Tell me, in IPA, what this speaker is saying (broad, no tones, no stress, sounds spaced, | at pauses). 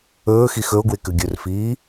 ɵː x i x ɵ o̯ ɡ w e k ʉ ɡʲ ɵ r f iː